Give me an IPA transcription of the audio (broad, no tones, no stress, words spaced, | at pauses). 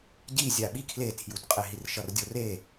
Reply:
ɟi zʲaɓi kʰletʰjutqʼeɦir ʃʌrdʲore